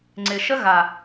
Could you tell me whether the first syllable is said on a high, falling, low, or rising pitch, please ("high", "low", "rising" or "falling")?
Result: low